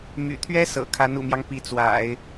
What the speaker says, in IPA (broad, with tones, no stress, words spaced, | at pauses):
my̰˨˩t̪ʰɥɛ˥ sɤ̰˨˩kʰa˧˥n ṵ˨˩mjɑ˦ŋ pi˧˥t͡swa̰˨˩˦ɪ̯